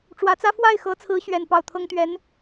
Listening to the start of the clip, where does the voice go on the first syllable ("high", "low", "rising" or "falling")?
rising